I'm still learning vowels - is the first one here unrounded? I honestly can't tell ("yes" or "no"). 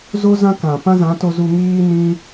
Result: no